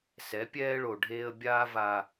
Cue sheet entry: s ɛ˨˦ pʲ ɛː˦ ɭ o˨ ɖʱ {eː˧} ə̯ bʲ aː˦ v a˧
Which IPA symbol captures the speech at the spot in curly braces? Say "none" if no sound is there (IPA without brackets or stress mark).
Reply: eː˧